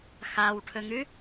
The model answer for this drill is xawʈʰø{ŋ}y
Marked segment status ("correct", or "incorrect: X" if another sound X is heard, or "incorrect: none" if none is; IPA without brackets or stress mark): correct